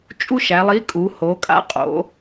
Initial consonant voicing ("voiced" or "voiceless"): voiceless